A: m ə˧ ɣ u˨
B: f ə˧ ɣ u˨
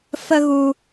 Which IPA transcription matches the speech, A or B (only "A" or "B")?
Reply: B